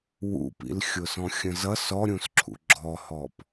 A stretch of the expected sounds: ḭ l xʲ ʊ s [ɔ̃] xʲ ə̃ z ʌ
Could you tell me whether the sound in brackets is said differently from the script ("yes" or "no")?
no